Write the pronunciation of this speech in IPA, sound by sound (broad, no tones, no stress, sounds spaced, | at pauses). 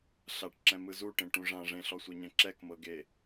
ɬ a ʈ ǁ ɛ̃ m ɯ z u ʈ ẽ ʈ ũ ʐ ã ʐ ẽ ɬ ɔ sʷ ɤ ɲ ɛ̃ ǁ ɛ k m ɤ ɡ e